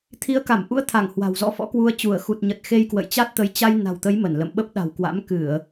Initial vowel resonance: oral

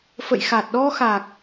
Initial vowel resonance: oral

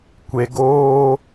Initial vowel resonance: oral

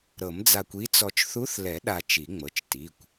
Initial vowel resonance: oral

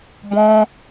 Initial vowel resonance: nasal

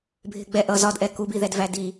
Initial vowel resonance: oral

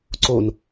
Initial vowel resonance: oral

